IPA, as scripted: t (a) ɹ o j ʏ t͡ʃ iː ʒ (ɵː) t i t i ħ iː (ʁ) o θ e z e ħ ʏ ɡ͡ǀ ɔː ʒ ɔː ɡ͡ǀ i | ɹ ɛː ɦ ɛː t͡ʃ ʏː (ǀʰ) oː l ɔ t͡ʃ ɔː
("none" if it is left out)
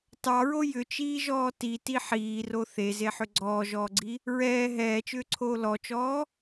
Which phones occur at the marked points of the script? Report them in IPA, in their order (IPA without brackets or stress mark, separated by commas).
ɑ, ɔː, r, ǀʰ